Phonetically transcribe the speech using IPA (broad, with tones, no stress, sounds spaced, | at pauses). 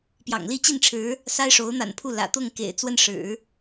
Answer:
p j ɑ̰˨˩ ŋ l i˥˧ t͡ɕ i˥˩ n ʈ͡ʂʰ ɻ̩˧˥ | s a˥ ɪ̯ ʂ o˧˥ ʊ̯ n̪ a̰˨˩ n pʰ u˥˩ l ä̰˨˩ t̪ ʊ˥˩ ŋ k ḛ˨˩ ɪ̯ t͡s w ə˥˩ n ʂ ɻ̩˨˩˦